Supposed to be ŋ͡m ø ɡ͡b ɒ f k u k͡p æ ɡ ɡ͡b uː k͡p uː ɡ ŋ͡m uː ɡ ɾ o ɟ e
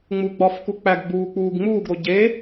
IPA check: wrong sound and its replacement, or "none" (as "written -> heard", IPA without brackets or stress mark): ø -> u